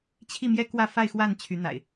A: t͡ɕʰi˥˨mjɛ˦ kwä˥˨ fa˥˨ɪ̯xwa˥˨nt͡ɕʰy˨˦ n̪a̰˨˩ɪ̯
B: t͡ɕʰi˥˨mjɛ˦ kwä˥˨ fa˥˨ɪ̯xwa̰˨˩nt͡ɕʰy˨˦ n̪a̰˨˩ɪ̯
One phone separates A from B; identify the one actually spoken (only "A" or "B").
A